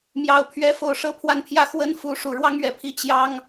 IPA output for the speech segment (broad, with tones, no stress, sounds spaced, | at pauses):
m j ɑ˨˩ ʊ̯ pʰ ɥ ɛ˧˥ f o˨˩ ʊ̯ ʂ ɤ˥ pʰ w a˥˩ n pʰ j ä˥ x w ə˥ n f u˧˥ ʂ u˨˩ ɻ w ɑ˥ ŋ ɥ ɛ˥˩ pʰ i˥ t͡ɕ j ɑ˥ ŋ